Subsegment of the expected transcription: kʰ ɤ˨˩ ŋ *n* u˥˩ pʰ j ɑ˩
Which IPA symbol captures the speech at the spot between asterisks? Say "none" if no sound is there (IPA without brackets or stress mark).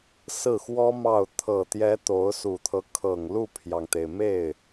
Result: l